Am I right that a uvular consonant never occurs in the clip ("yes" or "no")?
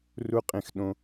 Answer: no